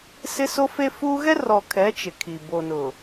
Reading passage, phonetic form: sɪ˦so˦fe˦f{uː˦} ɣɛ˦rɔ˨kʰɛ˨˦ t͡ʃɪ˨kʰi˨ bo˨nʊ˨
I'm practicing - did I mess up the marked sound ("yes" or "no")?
no